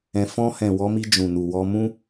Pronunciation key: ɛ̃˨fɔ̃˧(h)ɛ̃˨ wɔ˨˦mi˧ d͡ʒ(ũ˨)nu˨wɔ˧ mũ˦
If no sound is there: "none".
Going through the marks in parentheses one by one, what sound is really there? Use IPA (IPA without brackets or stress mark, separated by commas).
h, ũ˨